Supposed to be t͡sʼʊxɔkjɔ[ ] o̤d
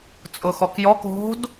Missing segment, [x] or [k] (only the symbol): k